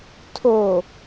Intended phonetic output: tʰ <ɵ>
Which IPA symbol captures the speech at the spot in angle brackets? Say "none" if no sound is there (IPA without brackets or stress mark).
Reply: o